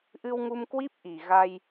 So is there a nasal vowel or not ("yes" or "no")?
no